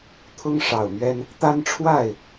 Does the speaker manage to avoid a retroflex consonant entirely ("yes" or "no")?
no